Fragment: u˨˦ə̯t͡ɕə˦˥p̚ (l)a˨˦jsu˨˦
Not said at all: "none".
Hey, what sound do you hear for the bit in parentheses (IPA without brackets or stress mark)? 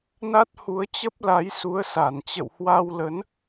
l